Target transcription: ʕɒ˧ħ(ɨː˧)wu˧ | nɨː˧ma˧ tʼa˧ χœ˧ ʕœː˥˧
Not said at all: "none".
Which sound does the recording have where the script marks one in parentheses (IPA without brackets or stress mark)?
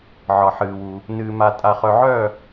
ɨː˧